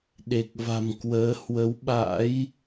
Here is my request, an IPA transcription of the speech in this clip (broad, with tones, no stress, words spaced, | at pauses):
ɗe˨˩k̚va̤˨˩mkwəː˨˦ hwə˨˦wɓa̰˧˥j